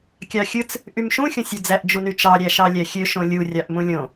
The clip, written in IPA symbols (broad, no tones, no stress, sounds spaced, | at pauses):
kʲ ɑ xʲ ɯ t͡s | ʔ y m ʃ ũ xʲ õ sʲ u d͡z æ ʔ d͡ʒ u n y t͡ʃ ɑ ɾʲ æ ʃ ɑ lʲ æ xʲ ø ʃ õ lʲ u rʲ ɑ ʔ m ũ lʲ õ